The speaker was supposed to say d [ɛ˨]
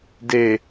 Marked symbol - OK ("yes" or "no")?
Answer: no